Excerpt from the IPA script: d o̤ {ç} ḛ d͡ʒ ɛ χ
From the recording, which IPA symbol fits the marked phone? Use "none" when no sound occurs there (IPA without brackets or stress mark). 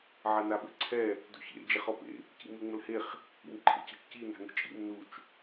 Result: ç